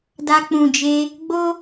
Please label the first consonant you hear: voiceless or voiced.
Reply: voiced